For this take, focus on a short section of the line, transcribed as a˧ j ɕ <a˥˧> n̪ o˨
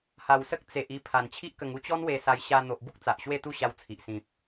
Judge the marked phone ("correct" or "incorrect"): incorrect